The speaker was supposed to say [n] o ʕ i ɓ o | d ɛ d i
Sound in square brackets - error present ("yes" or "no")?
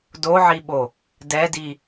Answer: yes